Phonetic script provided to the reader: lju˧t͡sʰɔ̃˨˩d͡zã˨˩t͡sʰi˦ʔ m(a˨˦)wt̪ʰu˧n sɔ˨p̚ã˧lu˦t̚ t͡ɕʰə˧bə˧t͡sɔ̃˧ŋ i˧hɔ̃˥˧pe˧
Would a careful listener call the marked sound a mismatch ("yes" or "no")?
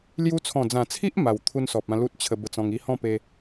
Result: yes